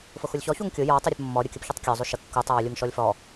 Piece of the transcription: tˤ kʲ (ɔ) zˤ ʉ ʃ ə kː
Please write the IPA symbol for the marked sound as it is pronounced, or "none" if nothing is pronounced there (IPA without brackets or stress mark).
ɔ